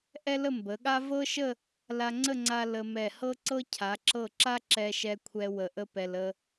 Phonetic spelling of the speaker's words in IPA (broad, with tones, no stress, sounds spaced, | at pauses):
ʔ ɛ˥ l ə˥˧ m b ə˩˧ ɠ a˥ v ɤ˥ ʃ ə˥˧ | l a˧ ŋ͡ǀ ə˥˧ ŋ͡ǀ a˧ l ə˧ m ɛ˧˩ h ɤ˥ ǀ ɤ˥ cʰ a˩˧ ǁ ɤ˧˩ ǁ a˥ ǁ ɛ˧ ʃ ɛ˧ kʷʰ ɛ˧ w ə˧˩ ʔ ə˥ p ɛ˧ l ə˧